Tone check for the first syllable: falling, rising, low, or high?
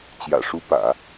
low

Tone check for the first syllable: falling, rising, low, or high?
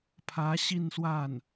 rising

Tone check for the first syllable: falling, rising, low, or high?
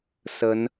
rising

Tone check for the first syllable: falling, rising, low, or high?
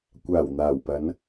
low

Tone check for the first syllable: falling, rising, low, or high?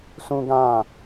high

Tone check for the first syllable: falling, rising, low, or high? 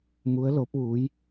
rising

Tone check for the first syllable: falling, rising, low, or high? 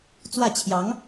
falling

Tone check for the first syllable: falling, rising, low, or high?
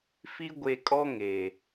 high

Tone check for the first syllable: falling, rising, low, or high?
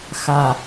low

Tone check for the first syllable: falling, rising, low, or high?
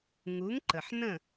rising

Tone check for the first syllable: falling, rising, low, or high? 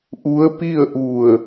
rising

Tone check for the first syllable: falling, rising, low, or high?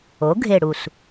rising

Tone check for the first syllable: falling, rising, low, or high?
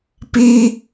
high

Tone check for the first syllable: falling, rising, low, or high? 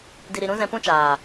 low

